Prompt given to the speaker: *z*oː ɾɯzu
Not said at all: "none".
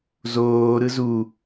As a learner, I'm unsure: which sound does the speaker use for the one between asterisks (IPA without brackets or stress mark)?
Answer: z